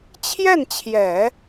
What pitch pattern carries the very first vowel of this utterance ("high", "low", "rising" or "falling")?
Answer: falling